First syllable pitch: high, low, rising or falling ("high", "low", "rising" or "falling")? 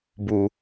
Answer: low